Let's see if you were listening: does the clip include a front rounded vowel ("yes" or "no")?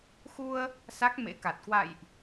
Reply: no